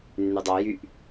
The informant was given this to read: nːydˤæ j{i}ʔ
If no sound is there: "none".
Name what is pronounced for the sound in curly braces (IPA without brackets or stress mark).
y